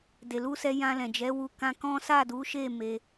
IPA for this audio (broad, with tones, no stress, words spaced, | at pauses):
de˨lu˧sɛ˧ jã˧lɛ̃˨d͡ʒɛ˨˦ wu˧kã˧kɔ̃˦ sa˦˨du˨˦ʃe˦˨ me˧